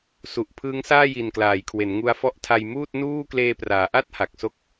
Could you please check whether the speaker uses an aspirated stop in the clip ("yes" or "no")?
yes